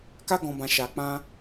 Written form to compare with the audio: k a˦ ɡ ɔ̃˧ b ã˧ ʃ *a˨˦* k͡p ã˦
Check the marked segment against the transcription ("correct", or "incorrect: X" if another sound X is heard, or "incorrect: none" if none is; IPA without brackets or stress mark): incorrect: a˧